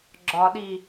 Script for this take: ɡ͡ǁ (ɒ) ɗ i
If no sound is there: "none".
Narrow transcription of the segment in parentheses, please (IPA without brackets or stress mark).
ɒ